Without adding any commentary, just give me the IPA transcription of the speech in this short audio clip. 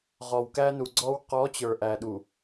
ʁ ɔ˨ w k æ˦ n u˨ ɡ͡ǀ ɔ˦ w q ɔ˨˦ t͡ɕ ə˞˨ ʔ æ˨ ɗ u˨

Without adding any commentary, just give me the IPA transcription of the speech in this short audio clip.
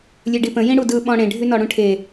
lʲ ø ɖ i p ə̃ j ĩ ɽ u d ɯ ɓ ɔ̃ ɽ ẽ ɖʱ y n ɔ ɽ ũ ʈʰ e

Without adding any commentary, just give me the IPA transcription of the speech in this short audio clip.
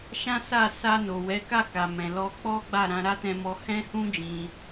ʃ ã˦ s a˦˨ s a˧ n o˨ w ɛ˨˦ k a˦˨ k a˨ m ɛ̃˨ l ɔ˧ k͡p ɔ˦ ɡ͡b a˦˨ ɾ ã˧ ɾ a˦ t ɛ̃˧ m ɔ˧ h ɛ̃˦ h ũ˦ d͡ʒ ĩ˧

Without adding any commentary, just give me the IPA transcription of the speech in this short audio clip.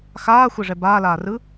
x aː xʷ e ʐ ɛ b aː l aː r ɯ

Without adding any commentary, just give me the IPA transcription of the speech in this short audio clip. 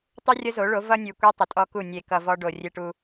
tˤ ʉ˦ rʲ ə˦ z o˨˦ ɭ o˨˦ v ʌ˦ nʲ ʉ˨ kʷ e˦ tˤ ə˨ tʼ ɔ˦ k u˦˨ nʲ e˨ k ʌ˨ v ɔ˦ ɖ o˨ rʲ e˦ ʈ u˦

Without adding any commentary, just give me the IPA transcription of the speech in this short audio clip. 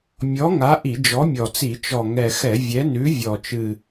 mʲ ɔ˨˥ ŋ a˨˥ ʔ i˧˩˧ d͡ʒ ɔ˨˥ mʲ ɔ˨˩ t͡s i˧˩˧ t͡ʃ ɔ˨˩ ŋ ɛ˨˩ x ɛ˧˩˧ vʲ ɛ˨˥ n ʉ˨˥ vʲ ɔ˨˩ t͡ʃ ɨ˨˩

